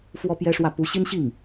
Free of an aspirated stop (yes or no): yes